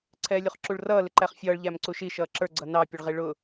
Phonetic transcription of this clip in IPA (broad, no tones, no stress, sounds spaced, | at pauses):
ǀʰ ɛː lʲ u χ ǁ u ɭ r ʌː l ɪ ǃ æ χ fʲ ʌː ɭ ʎ æ m ǀ u ʃ i ʃ ʌː ǁ ə˞ ɡ͡ǀ ʌ n ɑ pʲ ə ɭ ʁ i ɭ ʊ